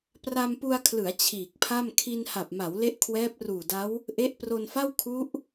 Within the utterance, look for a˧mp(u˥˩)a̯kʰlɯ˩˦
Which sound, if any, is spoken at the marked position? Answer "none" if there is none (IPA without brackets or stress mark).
u˧